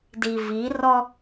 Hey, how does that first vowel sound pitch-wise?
low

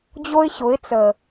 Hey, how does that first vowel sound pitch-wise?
high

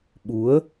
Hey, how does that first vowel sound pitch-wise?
rising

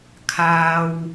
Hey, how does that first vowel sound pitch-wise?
low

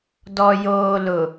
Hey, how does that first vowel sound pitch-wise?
low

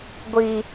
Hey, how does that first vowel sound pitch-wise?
high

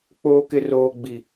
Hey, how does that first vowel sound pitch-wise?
high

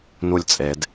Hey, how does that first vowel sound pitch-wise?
falling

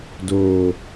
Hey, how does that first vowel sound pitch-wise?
low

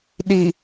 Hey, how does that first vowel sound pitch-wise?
low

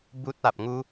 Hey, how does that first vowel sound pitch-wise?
high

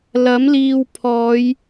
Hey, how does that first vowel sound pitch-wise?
rising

